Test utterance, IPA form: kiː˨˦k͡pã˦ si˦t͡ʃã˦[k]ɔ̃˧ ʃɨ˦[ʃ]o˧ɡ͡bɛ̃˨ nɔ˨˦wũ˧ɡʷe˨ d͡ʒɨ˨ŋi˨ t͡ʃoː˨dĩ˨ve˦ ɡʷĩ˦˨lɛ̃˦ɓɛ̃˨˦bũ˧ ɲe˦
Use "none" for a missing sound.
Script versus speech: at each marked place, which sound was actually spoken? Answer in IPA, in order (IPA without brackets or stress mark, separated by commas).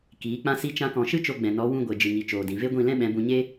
k, t͡ʃ